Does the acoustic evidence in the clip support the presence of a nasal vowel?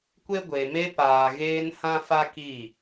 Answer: yes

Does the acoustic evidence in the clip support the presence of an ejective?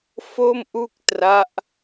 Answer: no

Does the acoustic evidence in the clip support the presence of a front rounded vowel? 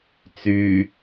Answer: yes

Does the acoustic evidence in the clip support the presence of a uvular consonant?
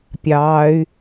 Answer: no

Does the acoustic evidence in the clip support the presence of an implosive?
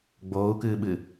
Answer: yes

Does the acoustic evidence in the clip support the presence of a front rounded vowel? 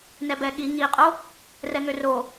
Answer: yes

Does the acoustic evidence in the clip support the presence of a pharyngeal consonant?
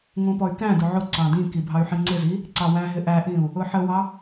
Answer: yes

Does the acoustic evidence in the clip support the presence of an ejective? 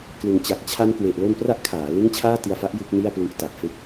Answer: no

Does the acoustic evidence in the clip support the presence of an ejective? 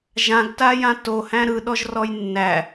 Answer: no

